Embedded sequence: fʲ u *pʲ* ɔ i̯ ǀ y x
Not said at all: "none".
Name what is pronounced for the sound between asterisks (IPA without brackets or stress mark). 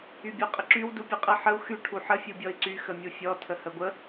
bʲ